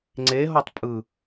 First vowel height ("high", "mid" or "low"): mid